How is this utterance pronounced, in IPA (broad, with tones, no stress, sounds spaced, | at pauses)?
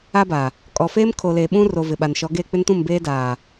a˦ b a˨ | kʼ ɔ˨ f eː˦ m kʰ o˨ l eː˨ ɓ ũ˦ r o˨ v ɪ˨ ɓ a˨ n ʃ ɔ˨˦ ɡ eː˦˨ k͡p ɪ˦ n t ũ˦˨ m b eː˦ d aː˨